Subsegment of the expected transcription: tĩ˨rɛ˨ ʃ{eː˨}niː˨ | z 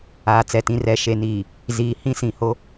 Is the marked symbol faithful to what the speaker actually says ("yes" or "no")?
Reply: no